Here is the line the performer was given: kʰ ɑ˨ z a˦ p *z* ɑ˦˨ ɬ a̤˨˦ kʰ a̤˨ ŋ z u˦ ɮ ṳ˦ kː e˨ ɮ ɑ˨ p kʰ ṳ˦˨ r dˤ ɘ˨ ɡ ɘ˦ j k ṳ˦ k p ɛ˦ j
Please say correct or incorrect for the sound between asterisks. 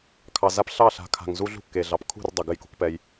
incorrect